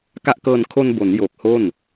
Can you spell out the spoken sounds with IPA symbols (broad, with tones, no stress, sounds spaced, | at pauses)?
k a˦˥ ʔ k ɤː˧ n kʰ o˧ n b o˩˦ n j oː˨˩ k̚ h o˥˩ n